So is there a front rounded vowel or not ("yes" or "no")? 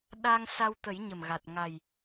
no